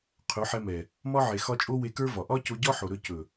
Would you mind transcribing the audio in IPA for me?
qʰ ɵ˨˦ ħ ɛ˧ m ɛ˨ | m ɒ˦ ʕ e˨ x ɒ˧ t͡ʃʼ o˦ w e˧ k ə˞˦ v ɒ˨ ʔ ɒ˦ c o˧ ɟ ɒ˦ ħ o˨ ɾ ɵ˧ c ɵ˨

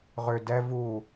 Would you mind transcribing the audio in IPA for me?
ʁ ʏ d ɛ v u

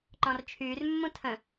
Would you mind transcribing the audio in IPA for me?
ǃ ɔ̃ r t͡ʃʰ yː r mː ũ tʰ ə̃

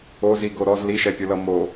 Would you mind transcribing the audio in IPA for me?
o z i ɡ o ɾ ɔ z l i ʃ ɛ pʲ o l ʌ m o

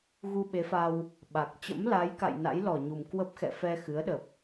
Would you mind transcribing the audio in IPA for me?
ɣ u˧ ɓ e˨˦ f a˧ w | ɓ a˨˩ k̚ t͡ɕ ə̰˧˥ m l a˨˦ j k a̰˧˨ j n a̰˧˥ j l ɔ˧˩ ɲ u˨˩ m k w ə˦˥ p̚ x ɛ̰˧˨ f ɛ˧ x ɨ˨˦ ə̯ ɗ ə˨˩ p̚

